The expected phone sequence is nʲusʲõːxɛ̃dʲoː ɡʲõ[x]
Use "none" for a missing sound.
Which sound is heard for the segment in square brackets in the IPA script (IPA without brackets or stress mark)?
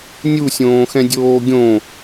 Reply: none